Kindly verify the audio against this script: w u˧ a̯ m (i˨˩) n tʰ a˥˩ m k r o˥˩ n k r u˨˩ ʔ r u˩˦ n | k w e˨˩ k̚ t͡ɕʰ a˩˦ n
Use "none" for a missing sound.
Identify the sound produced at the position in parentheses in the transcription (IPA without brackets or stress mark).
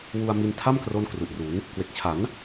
i˧